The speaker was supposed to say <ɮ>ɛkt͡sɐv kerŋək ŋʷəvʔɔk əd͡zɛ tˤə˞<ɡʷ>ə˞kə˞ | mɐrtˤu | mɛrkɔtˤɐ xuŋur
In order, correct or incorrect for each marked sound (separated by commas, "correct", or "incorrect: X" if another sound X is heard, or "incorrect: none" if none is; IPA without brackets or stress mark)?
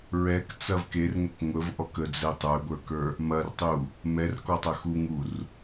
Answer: incorrect: ɹ, correct